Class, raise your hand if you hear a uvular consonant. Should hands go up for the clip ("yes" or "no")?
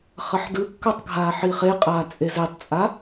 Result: yes